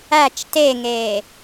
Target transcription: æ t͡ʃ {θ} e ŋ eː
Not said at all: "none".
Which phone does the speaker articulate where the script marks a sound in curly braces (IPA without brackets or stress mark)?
t